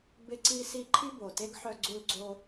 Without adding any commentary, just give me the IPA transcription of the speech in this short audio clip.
bɪ˥ǀi˥si˥ ǃʰi˥bo˨˩te˥ɡ ħœ˥ ɡ͡ǀu˥l ɡ͡ǀo˥

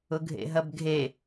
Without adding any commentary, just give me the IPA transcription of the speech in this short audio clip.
ʊɡʱḛɦɐbɡʱe

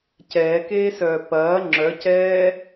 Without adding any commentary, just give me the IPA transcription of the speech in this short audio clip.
cɛːkeːsœː pɐː ŋ͡ǁœcɛː

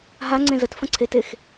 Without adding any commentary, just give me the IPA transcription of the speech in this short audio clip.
ɦaŋ͡ǀẽ zətfə̃ ǀʰetex

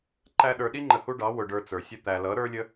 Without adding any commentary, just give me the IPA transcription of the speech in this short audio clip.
ǃæ˦ɗə˞˧ ɗi˦ŋ͡ǃə˨ hu˦ɖɑ˨˦ wʊ˧ɖə˞˧t͡sə˞˨sʲə˦ t̪æ˨lʌ˨˦ ɾə˞˦lʲə˦

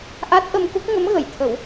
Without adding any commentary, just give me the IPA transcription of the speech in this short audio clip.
ʔa˦˥t̚ʔə˧mku˦˥k̚ ŋə˧˥mɣə˨˩˨jt̪ʰə˨˩˦w

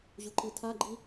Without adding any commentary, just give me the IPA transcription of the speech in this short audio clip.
ʑuǃitʰaɡ͡ǃi

